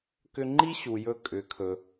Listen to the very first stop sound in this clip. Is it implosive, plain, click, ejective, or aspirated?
plain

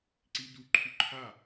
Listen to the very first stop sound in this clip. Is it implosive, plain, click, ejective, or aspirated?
click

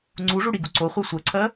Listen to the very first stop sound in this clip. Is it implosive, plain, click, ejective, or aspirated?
click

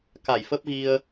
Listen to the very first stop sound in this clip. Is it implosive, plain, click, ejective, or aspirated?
plain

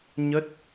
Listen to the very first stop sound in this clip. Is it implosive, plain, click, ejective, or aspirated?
plain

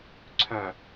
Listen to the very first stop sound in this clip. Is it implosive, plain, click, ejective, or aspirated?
click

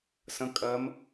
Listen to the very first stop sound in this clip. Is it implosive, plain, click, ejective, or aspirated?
ejective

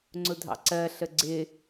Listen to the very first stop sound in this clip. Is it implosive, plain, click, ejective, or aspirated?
click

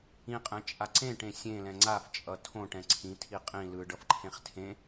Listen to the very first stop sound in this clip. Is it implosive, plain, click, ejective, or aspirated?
ejective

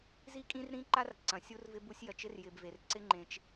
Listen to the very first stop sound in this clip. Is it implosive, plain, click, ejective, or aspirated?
ejective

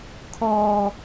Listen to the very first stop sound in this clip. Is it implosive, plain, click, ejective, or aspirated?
aspirated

